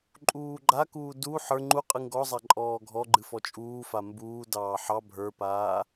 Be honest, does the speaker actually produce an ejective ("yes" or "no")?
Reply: yes